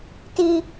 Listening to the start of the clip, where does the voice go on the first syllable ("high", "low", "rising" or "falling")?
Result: high